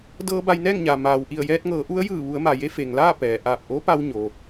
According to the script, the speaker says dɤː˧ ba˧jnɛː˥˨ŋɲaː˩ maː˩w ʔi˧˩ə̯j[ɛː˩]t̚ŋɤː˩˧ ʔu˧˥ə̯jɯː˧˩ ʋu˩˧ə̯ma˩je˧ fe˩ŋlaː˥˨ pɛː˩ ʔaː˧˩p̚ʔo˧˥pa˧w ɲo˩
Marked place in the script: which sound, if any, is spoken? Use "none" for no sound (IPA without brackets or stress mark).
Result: ɛː˧